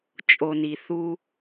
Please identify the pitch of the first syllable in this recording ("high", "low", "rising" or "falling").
low